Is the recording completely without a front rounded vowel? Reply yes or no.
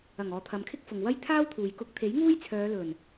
no